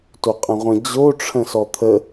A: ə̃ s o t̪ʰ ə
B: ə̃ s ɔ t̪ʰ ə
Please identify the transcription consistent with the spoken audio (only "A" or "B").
B